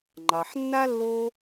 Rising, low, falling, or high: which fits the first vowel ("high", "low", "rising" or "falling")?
low